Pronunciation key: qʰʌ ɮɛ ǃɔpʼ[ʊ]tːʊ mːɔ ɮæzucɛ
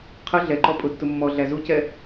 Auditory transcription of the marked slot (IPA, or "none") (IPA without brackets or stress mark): ʊ